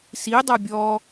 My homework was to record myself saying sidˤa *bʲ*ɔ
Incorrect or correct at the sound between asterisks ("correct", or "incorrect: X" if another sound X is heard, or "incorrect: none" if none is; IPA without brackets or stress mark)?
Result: correct